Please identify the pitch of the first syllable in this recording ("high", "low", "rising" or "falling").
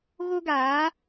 high